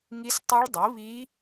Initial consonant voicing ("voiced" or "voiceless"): voiced